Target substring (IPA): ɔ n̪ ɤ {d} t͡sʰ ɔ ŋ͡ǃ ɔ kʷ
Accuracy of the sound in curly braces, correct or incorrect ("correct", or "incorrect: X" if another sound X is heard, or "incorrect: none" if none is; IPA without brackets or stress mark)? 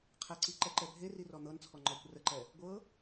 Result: incorrect: n